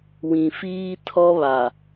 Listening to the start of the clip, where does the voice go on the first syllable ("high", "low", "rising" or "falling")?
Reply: low